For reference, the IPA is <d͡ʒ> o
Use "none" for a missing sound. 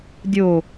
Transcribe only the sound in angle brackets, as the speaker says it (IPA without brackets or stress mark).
dʲ